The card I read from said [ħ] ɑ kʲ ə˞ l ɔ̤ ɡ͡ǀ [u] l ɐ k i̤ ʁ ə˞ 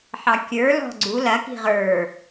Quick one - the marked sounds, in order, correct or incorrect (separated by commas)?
correct, correct